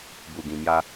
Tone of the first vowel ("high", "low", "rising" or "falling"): low